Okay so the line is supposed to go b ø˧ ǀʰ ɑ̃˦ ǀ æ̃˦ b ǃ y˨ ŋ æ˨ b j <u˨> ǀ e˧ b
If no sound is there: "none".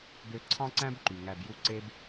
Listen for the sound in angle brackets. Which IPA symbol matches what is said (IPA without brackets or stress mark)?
u˧